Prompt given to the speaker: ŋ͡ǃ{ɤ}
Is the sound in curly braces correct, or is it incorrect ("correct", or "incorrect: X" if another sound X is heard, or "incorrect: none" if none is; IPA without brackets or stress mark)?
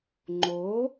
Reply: incorrect: o